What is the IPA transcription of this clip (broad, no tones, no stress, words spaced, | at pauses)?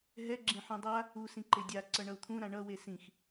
ɦɛɡ͡ǁẽ ħũdˤa | u sĩǃedʲaǀʌ ɳʌu̯t̪ʰũɾã ɳʌwe sĩx